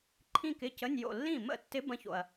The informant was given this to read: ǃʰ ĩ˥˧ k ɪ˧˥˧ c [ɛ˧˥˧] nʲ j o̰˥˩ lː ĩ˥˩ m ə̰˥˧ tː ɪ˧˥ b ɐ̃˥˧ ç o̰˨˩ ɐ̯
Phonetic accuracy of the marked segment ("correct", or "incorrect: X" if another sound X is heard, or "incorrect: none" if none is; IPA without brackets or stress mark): incorrect: ə˧˥˧